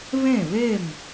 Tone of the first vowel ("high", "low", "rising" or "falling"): falling